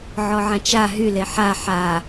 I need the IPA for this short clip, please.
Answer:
ʕ ɔ ʕ ã t͡ʃ a ɦ y l e ħ a ħ a

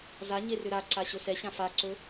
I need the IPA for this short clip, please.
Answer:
z a ɲ e r ʏ ɾ a ǀ a ɕ ɵ s ɛ ɕ ã f a ǀ ɵ

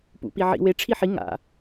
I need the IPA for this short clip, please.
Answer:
p ṵ p i ʕ ḭ w e ʈ͡ʂʰ i ħ i ŋ a̰

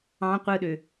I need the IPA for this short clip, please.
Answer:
ɑ̃ qʷ ɯ ɗ ø

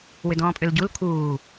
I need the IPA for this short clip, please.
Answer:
w ʏ d ɔ̃ː pʼ ʏ l ɟ u l kʰ uː

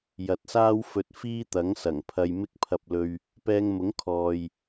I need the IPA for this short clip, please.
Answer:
j ɐ˨˥ t̚ s aː˥ w f ɵ˧ t̚ f iː˥ t̪ ɐ˨˥ ŋ s ɐ˨˩ ŋ pʰ ɐ˧ j m ɪ˧ k̚ pʰ ɐ˨ p̚ l ɵ˨ ɥ | p ɛː˧ ŋ m ʊ˨˥ ŋ kʰ ɔː˨ j

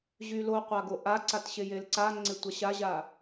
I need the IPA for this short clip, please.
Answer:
ʑ y l o qʷ a ɡ o ʔ a ǀ a t ɕ e j e l ǀ a ŋ͡ǀ e tʷ a ɕ a ʑ a

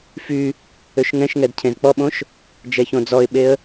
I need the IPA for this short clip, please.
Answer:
f y | ø ʃ ŋ ɛ̃ ʃ ŋ ɛ d cʰ ẽ z k͡p ɔ ɓ õ ʃ | d͡ʒ ɛ ç õ d͡z ɔ ɪ̯ ɓ e ə̯

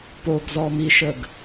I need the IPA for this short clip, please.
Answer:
p o ɡ z ɔ m i ʃ ə ɡ

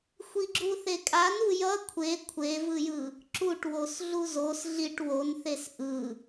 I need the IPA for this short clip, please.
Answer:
xʷ i ɡ͡ǁ u θ e kʼ a n u j ʌ kʷʰ e kʷʰ e v ɯ j ɯ | ǁ u ʈ w o s ɮ u z o s ɮ i ʈ w o n θ e s ʔ ɯ

